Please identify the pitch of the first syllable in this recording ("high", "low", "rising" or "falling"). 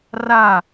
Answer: falling